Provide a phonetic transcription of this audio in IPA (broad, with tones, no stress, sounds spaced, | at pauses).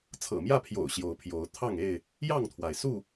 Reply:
t͡sʰ ɤ̰˨˩ m j ä˥˨ pʰ j o̰˨˩ ʊ̯ ɕ j o˨˦ ʊ̯ pʰ j o˨˦ ʊ̯ t̪ʰ ɑ˥˨ ŋ e˥˨ ɪ̯ | j ɑ˥˨ ŋ t̪ʰ w a˩ ɪ̯ s u˥˨